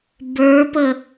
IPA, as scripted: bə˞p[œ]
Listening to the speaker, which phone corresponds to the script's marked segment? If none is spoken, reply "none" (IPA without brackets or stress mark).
ə